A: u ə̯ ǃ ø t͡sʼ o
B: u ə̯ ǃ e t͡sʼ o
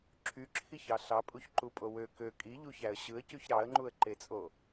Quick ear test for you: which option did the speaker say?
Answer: B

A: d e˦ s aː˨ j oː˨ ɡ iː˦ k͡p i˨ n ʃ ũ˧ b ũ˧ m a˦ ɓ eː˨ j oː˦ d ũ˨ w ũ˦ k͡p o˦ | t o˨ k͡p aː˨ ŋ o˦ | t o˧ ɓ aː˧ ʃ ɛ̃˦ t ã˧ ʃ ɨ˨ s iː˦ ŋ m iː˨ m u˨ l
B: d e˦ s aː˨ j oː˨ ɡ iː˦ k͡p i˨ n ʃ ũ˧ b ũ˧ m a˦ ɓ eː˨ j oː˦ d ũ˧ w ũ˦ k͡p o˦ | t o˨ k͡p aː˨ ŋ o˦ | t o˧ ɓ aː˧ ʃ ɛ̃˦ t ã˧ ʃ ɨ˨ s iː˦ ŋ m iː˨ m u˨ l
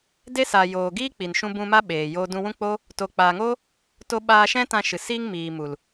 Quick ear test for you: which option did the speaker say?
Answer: B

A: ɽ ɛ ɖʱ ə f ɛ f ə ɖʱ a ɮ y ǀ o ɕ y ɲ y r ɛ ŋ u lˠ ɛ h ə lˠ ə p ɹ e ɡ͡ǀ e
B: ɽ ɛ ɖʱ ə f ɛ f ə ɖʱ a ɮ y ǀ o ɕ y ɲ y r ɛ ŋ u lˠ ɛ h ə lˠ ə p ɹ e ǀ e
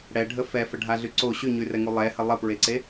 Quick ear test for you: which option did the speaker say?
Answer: B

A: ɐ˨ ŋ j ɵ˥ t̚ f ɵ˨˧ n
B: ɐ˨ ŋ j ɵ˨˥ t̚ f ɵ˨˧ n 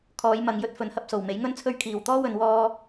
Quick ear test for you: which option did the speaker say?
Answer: A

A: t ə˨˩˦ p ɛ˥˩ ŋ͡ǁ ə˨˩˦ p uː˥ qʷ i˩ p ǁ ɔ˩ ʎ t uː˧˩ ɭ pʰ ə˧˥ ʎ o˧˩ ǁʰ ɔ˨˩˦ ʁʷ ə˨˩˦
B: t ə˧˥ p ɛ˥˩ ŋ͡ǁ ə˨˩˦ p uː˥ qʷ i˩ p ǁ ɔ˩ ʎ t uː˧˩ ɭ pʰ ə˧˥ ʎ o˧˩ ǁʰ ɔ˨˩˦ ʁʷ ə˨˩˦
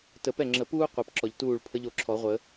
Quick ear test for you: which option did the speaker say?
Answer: A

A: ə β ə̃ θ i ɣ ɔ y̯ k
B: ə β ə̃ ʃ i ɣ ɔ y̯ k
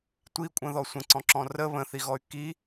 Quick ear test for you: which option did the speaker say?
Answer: A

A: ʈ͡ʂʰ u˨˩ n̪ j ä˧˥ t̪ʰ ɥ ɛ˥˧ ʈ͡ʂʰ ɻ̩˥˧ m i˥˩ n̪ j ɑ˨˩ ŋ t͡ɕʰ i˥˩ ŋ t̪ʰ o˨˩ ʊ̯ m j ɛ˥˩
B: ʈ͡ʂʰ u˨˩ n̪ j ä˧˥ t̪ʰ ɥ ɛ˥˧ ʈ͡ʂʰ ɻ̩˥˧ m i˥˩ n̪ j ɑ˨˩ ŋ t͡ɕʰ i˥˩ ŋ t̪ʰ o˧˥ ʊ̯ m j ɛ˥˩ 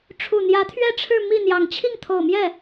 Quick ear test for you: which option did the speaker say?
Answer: A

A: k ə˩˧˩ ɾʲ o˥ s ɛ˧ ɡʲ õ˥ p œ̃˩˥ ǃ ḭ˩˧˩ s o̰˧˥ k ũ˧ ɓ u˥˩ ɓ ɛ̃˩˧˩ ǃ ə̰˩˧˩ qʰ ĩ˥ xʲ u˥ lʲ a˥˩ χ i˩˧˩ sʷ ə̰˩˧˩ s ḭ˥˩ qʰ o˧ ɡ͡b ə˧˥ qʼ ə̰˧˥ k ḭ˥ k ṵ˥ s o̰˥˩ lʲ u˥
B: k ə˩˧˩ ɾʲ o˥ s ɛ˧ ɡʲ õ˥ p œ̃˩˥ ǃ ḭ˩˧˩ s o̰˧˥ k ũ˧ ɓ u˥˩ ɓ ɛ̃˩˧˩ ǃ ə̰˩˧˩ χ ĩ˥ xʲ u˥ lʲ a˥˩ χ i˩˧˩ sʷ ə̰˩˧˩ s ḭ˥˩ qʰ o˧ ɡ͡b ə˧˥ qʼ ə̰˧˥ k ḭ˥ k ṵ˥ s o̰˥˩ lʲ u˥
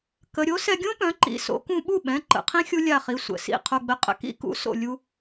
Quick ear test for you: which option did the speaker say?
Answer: A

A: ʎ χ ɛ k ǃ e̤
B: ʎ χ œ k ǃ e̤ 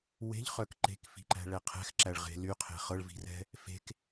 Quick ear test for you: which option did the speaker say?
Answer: B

